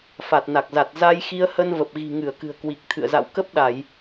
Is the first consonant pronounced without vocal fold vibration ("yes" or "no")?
yes